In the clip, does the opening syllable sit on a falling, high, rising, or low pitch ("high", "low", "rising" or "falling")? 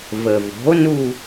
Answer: low